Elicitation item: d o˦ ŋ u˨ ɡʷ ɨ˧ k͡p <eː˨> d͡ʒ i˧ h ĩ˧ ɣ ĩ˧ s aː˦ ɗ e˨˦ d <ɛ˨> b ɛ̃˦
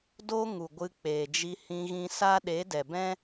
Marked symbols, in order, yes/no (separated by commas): yes, yes